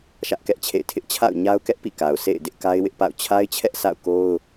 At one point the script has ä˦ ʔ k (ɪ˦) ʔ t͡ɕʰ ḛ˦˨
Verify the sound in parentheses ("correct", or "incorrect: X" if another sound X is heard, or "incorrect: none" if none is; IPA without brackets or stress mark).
incorrect: ɛ˦